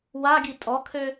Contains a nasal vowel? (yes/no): no